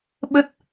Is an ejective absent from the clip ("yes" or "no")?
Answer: yes